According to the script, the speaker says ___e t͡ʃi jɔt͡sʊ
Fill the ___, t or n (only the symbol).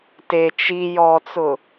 t